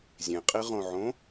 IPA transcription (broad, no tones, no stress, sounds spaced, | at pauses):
zʲ ẽ qʼ i ʁ õ ʕ õ